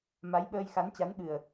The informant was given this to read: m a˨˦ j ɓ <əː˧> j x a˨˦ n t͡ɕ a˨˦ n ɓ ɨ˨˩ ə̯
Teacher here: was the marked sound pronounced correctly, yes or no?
yes